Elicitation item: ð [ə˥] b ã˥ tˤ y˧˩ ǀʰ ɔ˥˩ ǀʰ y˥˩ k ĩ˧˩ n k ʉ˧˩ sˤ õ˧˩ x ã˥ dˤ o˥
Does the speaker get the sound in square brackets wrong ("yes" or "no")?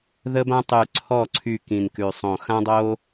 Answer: no